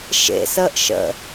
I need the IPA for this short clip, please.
ʃḛsəːʔ ʃə̰

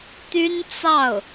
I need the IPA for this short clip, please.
t̪y˥nt͡sɑ˥˩ʊ̯

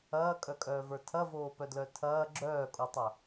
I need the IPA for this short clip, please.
ɐːkʼœkʼœːvə˞ tʰɐvoːpœdlœ tʰɐː ɡ͡ǁœːkʼotˤɐ

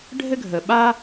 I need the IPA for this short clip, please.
ɖʱɘ˥ɡʱə˩ɓa˥

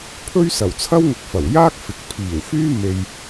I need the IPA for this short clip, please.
pʰɵ˥ɥsɐ˨˩wt͡sʰɐ˥w ŋʊ˧k̚fɐ˨˩w jaː˥k̚fɪ˨k̚pʰiː˨˩wfyː˥ me˧j

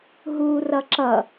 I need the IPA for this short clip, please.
ɦuːrʌǁʌ

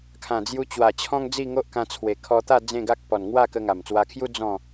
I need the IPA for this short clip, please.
kʰã˨˩d͡zju˧t͡ɕwa˨˩t͡ɕʰɔ̃˦ŋ d͡zi˥˧ŋo˦ʔkã˧t͡sʰwe˨˩ kʰɔ˧t̪a˥˧ d͡zẽ˥˧ɡa˦k̚ pɔ˨˩nŋwa˥˧ kə˧ŋa˨˩mt͡swa˧kʰju˦ d͡zɔ̃˥˧

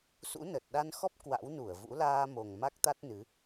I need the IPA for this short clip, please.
sṵ˧˥nə˨˩t̚ ɗa˧nxɔ˦˥p̚ kwa̰˧˥wnu˧˩ə̯vṵ˧˥ laː˧mo˨˩ŋ ma˦˥k̚t̪a˦˥t̚nɨ˨˦

